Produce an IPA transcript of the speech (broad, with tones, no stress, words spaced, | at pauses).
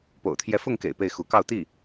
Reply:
po̰˨˩ʊ̯t̪ʰjɛ˧˥fʊ˥˩ŋkḛ˨˩ɪ̯ pe˥˩ɪ̯xu˧˥kɑ˥˧ʊ̯ t̪i˥˩